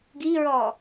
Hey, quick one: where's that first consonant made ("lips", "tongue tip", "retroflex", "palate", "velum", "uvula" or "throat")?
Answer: velum